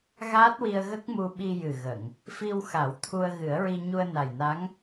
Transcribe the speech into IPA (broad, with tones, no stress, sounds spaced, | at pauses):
ɣ aː˦˥ t̚ w i˧ ə̯ ɣ ə˦˥ k̚ m u˧ ɓ i˧ j ɨ˨˩ ɣ ə˨˩˨ ŋ | f i˧ w x a˨˩˦ w t̪ʰ u˧ ə̯ ɣ ɨ˨˩˦ ə̯ ɹ i˧ ɲ u˧ ə̯ n a˨˩ j n a˧˥ ŋ